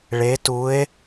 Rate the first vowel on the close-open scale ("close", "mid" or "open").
mid